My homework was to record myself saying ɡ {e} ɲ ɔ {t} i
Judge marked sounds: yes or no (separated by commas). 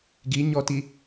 no, yes